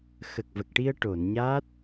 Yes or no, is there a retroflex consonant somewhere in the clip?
yes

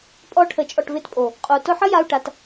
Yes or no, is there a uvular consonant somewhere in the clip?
yes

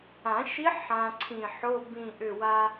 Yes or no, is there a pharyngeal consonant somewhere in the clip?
yes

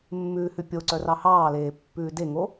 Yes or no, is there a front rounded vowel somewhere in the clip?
yes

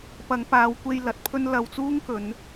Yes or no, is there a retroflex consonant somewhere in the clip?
no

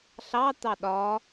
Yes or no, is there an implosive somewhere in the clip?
yes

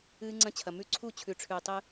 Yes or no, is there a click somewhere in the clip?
yes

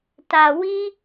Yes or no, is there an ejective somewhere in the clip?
no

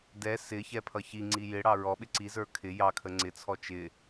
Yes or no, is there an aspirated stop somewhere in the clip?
yes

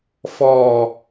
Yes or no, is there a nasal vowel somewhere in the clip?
no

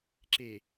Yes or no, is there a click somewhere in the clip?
yes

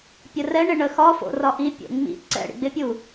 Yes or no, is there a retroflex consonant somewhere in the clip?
yes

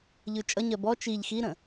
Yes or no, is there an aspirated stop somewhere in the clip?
no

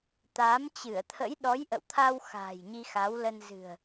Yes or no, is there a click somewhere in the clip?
no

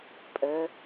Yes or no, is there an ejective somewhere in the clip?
yes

